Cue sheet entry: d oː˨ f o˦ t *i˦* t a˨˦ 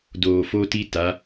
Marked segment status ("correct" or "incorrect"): correct